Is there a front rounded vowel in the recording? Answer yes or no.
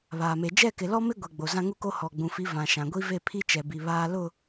no